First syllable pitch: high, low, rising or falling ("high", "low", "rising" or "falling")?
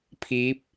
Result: rising